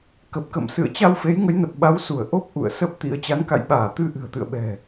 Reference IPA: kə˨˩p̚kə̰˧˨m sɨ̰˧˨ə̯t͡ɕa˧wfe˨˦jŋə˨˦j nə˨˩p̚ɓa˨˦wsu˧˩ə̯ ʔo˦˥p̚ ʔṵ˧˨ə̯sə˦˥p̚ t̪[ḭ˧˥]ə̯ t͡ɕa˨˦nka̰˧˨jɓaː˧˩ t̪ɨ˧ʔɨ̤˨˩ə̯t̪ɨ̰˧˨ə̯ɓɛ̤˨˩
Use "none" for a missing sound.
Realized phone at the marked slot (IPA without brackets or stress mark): ḭ˧˥